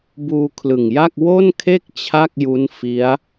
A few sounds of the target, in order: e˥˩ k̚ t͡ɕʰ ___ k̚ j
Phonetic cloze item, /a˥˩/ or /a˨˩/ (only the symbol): a˥˩